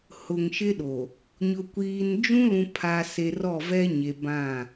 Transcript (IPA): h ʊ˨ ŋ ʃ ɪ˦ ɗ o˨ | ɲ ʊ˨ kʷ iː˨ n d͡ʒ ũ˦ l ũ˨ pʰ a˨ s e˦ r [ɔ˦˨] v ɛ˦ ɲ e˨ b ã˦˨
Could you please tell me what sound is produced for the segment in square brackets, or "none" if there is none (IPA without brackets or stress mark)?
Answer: ɔ˦˨